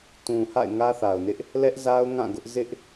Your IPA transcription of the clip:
t ũ˨ h a̰˦˨ ɪ̯ ŋ ä˦ θ a˨ ʊ̯ n ɪ˦ ʔ | l ɛ˦ ʔ z a˦ ʊ̯ ŋ ã˦˨ ɡ ʊ˦ ʔ z ɪ˦ ʔ

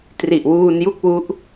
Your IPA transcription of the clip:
t r i˨˩ ʔ w uː˧ n j u˥˩ k̚ w u˦˥ ʔ

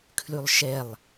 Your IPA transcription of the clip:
kʰ l ʉ lˠ ʃ ɛ lˠ

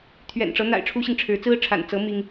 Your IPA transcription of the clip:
t̪ʰ ɥ ɛ̰˨˩ n ʈ͡ʂ ɤ˧˥ n̪ a̰˨˩ ɪ̯ ʈ͡ʂʰ u˥ ɕ i˨ ŋ ʈ͡ʂʰ ɻ̩˧˥ t͡s ɹ̩˥ ʈ͡ʂʰ a̰˨˩ n t͡s ɤ˧˥ m i˥ ŋ

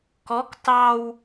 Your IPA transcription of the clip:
k ɔ k t ɑ w

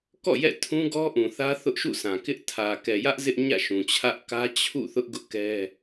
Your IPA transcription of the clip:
k ɔ̰˦˨ j ɛ̰˦˨ tʰ ũ˦ ɡ ɔ˦ ʔ ũ˨ θ ä˦ θ ʊ˦ ʔ ʃ ṵ˦˨ s ã˨ k ɪ˦ ʔ tʰ ä˨ k ɛ˨ j ä˦ ʔ z ɪ˦ ʔ ɲ ä̰˦˨ ʃ ũ˨ t͡ɕʰ ä˦ ʔ k ä˦ t͡ɕʰ ṵ˦˨ θ ʊ˦ ʔ ɡ ʊ˦ ʔ k ɛ˦

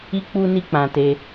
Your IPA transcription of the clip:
i˦ k͡p u˦ n i˦ k͡p ã˧ t e˧

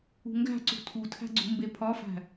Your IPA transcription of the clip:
ṳ ŋ ɡ æ̤ ǀ ṳ tʰ u tʰ æ̤ ɡ͡ǀ ṳ m b e pʰ ɒ f æ̤

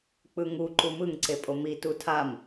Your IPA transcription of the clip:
k͡p ɯ ŋ u ǃ u m ɯ ŋ ǀ e pʼ o m i t u tʰ a m

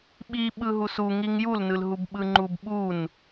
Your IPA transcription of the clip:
ɓ i ɓ ɯ ɦ u s u ŋ i ŋ j u l n ɯ l ɦ u b ɓ ɯ ŋ͡ǃ u b ɓ u n

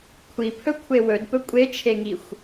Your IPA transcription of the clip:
kʷʰ i pʰ ɵ kʷʰ e w ɵ d p ɵ kʷʼ e t͡ʃʰ e ŋ i xʷ

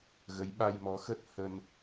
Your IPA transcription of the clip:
ɣ ə˨˦ j ɓ a˧ j m ɔ˨˦ x ə˦˥ t̚ h ə˧ n

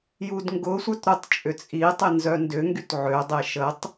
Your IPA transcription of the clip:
j u d ŋ ɡ ʊ sʷ œ t ɾ ʊ tˤ t͡ʃʼ ʏ t͡sʼ i tˤ ɪ n z œ n d ʏ ŋ ɡ y t ʕ ø dˤ e ʃ ə tˤ

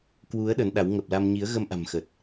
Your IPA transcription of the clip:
k w u˨˦ ə̯ ɗ ə˨˦ n ɗ a˨˦ w ŋ ə˨˩ p̚ l a˧ m ɲ i˨˦ ə̯ ɣ ə˧ m ʔ a̤˨˩ m x ə˨˩ t̚

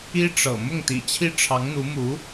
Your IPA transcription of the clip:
i˥ ʈ͡ʂ ɤ̰˨˩ m ʊ˥˩ ŋ t̪ ḭ˨˩ t͡ɕʰ i˥˩ ʈ͡ʂʰ ɑ˧˥ ŋ n̪ u˧˥ m u˧˥

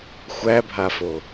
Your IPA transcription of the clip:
xʷ æ bʱ a f o

